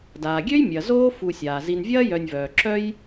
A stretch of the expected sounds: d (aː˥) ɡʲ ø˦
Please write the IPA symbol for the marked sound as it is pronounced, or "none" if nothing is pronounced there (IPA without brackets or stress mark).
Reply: aː˩